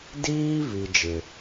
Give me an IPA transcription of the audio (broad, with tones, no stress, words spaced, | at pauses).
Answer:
diː˦ vi˦ d͡ʒɪ˦